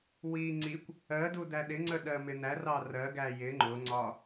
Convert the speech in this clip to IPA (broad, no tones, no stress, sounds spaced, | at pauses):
w i ŋ͡ǀ i kʷ | ɜ d u d æ ɗ ɪ ŋ͡ǀ ə ɗ ɜ m ɪ n æ r ɑ r ɜ ɡ æ j ɪ ŋ͡ǃ ʊ ŋ͡ǀ ɒ